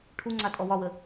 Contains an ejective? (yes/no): yes